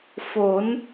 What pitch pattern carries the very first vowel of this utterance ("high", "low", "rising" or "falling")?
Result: rising